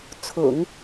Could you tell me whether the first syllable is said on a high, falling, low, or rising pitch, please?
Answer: low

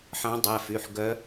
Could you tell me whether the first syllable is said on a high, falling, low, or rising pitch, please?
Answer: rising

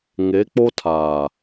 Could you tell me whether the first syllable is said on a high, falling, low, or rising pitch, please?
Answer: rising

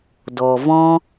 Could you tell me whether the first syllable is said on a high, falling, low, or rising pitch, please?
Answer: low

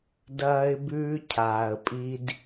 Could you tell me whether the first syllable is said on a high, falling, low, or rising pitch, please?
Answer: high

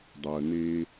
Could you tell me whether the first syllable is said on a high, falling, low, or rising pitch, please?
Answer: low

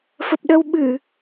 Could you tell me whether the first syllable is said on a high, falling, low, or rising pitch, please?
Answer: low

